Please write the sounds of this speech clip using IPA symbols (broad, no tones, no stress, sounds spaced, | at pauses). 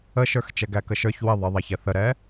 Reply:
ə ʃ ə˞ x t͡ʃ ɛ ɡ æ k ə ʃ ə˞ ç w ɪ ðˤ ɪ ðˤ ɛ ç ɛ θ ə ɾ ɛ